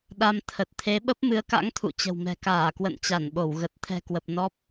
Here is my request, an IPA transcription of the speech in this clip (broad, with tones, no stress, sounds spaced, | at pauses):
ɗ a˧ m t̪ʰ ə˨˩ t̚ t̪ʰ e˨˦ ɓ ə˦˥ p̚ m ɨ˨˦ ə̯ k a̰˧˥ ŋ t̪ʰ ṵ˧˨ t͡ɕ ə̤˨˩ w m ɛ̤˨˩ k aː˧˩ k w ə̰˧˨ n t͡ɕ a˧˩ n ɓ o˧˩ w ɣ ə˨˩ t̚ t̪ʰ ɛ̤˨˩ k w ə˨˩ p̚ n ɔ˦˥ p̚